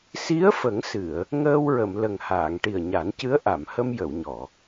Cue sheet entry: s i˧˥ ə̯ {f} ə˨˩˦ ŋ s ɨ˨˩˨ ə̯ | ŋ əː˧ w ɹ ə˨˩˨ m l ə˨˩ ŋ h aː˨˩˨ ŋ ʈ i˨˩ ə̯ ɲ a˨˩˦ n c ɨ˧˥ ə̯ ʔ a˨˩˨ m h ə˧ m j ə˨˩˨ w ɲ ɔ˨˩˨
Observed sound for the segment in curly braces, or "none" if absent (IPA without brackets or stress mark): f